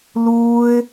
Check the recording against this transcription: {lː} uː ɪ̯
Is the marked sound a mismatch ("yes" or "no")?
yes